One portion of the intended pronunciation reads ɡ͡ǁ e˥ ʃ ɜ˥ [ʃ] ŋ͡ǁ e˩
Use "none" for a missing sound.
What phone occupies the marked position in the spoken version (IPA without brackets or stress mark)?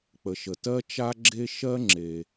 none